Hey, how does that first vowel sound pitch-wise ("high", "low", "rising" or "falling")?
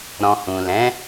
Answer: low